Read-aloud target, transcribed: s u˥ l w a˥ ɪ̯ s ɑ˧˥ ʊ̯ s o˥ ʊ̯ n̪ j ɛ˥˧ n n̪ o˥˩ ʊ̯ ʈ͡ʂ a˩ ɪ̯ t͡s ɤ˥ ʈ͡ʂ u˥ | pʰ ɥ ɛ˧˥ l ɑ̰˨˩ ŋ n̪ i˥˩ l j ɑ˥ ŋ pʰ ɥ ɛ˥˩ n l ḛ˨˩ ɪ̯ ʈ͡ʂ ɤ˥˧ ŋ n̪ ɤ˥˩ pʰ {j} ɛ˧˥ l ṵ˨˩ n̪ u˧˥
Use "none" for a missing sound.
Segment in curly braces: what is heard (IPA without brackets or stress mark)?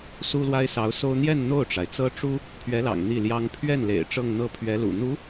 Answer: ɥ